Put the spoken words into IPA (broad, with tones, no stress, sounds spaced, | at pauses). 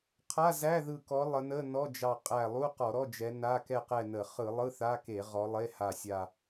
qʰ a˧˥˧ z æ˧˥˧ ð ɯ˧˩ k ɔ˨˦ lˠ ə˨˦ n ə˧˥˧ n ɔ˧˥˧ d͡ʒ ɑ˧˩ qʼ æ˧˩ lˠ u˧˥˧ q ɔ˧˩˧ ɾ ɔ˧˥˧ d͡ʒ ɛ˨˦ n a˧˥˧ k ɛ˥˨ q ɛ˥˨ n ə˧˩˧ χ ɯ˧˩˧ lˠ ɯ˧˥˧ θ a˧˥˧ k e˧˩˧ ʁ ɔ˨˦ lˠ e˧˥˧ h a˧˩ sʲ a˥˨